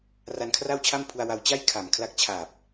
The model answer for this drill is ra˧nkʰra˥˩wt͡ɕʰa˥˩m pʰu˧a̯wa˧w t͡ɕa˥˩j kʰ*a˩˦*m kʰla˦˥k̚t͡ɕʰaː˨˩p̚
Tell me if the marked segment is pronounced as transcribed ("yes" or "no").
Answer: no